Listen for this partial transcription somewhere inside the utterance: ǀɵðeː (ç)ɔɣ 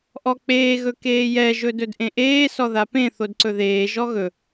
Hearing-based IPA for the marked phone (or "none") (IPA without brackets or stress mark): ʒ